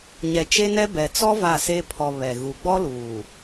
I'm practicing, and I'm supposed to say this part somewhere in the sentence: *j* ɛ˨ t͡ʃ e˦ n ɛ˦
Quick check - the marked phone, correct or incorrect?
incorrect